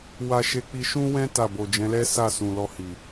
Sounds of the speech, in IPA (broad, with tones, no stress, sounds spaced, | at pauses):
w a˧ ʃ e˧ k͡p i˧ ʃ ũ˦ w ɛ̃˦ t a˦˨ b o˨ d͡ʒ ɛ̃˨˦ l ɛ˦ s a˦˨ s ũ˨ l ɔ˧ h i˨